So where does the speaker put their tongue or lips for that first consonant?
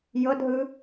palate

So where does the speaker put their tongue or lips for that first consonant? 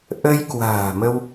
throat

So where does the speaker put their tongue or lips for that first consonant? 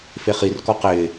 lips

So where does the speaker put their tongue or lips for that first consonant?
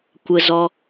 velum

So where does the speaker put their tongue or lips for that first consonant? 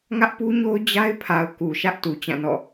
velum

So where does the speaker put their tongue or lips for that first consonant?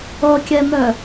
velum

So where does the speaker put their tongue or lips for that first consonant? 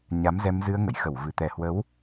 palate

